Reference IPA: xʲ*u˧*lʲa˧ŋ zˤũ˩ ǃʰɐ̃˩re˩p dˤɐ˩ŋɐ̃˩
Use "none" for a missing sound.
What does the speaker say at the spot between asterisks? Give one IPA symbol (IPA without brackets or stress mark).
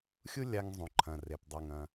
u˥